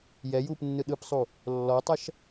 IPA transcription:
jɛjuːp nːɯɗɯpsˤu | lːɔtˤɐʃ

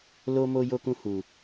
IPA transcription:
lo˦mo˦ jo˦kũ˦ hu˧

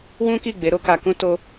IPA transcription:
wũ˦ki˦˨ ɡ͡be˨˦ɾo˦ka˧kũ˦ to˦

